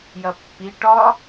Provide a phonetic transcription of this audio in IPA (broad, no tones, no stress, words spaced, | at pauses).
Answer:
jɐpːi ʈɒ